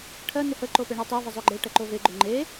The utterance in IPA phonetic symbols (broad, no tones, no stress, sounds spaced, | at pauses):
ʈʰ ɜ n ɪ h ə ǃ o p e ɳ ɜ tˤ ɜ v ə zˤ o ɡ͡ǃ e ʈ ɜ ǃ o v e ɡ͡ǃ o ŋ͡ǃ e